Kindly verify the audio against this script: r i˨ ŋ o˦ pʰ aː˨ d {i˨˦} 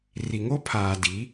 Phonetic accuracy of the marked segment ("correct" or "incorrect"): correct